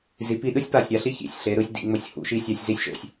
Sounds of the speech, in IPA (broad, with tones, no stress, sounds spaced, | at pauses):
z i˩˧ p i˧ ɗ ɯ˥ sʲ p a˧˩ sʲ ɾʲ a˩˧ ɬ i˥ ç ḭ˧˩ sʲ ɬ e˩˧ ɾ ɯ˧ sʲ d ḭ˩˧ ŋ͡m o˧ sʲ h ṵ˩˧ ʃ i˧ sʲ a˧ sʲ z i˥˧ sʲ ʃ o̰˧ sʲ